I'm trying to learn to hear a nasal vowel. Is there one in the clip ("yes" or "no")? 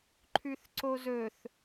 no